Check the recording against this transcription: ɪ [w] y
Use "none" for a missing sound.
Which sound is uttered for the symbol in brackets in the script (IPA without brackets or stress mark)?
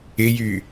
j